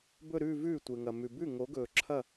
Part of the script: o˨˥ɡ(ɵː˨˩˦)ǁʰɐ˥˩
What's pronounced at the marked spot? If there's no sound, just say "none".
ɵː˨˩˦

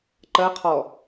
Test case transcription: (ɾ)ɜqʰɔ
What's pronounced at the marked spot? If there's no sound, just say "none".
ǃ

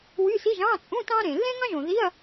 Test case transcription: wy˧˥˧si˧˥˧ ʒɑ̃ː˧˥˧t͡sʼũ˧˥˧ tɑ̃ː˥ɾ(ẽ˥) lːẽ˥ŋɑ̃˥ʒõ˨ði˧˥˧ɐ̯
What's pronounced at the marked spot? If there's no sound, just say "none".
ẽ˨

